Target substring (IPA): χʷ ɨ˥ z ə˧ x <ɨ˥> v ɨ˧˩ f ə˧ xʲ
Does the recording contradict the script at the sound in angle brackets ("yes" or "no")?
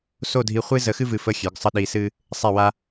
no